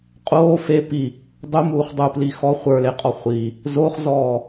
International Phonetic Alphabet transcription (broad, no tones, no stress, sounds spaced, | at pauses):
qʼ oː f e p i | dˤ u m uː χ dˤ u p l i x ɔ χʷ ə˞ l e qʼ ɔ χʷ i | z o χ z ɔː